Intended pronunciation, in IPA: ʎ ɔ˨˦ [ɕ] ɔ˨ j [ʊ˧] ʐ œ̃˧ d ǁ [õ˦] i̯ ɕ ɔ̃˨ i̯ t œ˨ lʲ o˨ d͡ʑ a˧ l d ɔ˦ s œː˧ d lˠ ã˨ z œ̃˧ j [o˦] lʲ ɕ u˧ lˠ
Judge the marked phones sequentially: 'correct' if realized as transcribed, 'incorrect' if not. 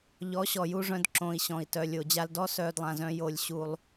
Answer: correct, incorrect: u˧, incorrect: õ˨, incorrect: o˧

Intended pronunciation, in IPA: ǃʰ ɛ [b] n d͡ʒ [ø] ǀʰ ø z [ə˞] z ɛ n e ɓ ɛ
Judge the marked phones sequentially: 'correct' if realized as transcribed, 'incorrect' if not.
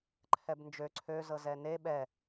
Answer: correct, correct, incorrect: ɤ

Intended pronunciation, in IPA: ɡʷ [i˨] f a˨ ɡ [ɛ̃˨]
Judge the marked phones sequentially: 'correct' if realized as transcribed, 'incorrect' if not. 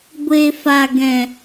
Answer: incorrect: e˨, correct

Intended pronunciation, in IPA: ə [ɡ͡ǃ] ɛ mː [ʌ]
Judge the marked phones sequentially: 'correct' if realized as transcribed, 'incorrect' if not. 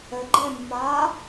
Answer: correct, incorrect: a

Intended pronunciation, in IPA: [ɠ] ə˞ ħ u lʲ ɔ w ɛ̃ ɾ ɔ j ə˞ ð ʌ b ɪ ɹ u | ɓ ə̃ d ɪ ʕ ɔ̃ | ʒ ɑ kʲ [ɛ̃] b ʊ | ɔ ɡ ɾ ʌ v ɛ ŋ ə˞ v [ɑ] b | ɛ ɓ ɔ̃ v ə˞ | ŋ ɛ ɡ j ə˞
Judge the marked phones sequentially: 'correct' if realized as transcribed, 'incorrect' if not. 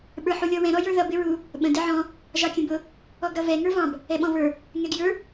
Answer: incorrect: ɓ, incorrect: ə̃, incorrect: ɑ̃

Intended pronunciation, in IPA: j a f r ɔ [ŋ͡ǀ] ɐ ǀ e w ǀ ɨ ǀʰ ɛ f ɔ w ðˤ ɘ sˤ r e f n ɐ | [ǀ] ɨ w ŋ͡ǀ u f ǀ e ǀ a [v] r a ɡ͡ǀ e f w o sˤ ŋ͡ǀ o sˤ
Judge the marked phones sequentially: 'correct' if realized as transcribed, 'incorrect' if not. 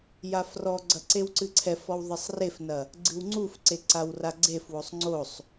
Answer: incorrect: ɡ͡ǀ, incorrect: ɡ͡ǀ, incorrect: w

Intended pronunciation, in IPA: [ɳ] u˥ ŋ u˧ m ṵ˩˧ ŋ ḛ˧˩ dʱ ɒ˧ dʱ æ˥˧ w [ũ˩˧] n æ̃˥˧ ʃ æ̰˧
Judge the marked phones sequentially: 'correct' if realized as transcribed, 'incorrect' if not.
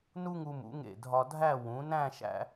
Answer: incorrect: n, correct

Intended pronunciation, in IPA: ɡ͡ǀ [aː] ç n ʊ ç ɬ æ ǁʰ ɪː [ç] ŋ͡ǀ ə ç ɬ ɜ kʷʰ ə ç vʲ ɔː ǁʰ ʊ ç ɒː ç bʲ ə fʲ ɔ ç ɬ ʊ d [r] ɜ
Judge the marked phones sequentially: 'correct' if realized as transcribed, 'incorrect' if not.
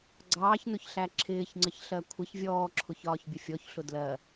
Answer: incorrect: ɑː, correct, incorrect: l

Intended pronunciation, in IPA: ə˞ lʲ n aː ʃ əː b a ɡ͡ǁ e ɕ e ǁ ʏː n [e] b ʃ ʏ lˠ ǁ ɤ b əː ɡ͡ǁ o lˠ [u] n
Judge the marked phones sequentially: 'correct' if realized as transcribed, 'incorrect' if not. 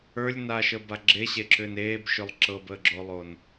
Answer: incorrect: eː, incorrect: o

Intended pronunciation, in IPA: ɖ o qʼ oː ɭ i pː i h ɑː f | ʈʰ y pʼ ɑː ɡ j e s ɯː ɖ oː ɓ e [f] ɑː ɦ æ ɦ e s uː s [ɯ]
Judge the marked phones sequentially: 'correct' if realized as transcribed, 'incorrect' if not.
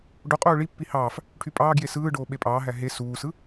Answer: incorrect: pʼ, correct

